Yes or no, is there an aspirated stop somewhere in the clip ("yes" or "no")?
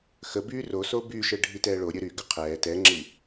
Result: yes